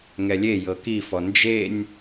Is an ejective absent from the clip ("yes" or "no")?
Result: yes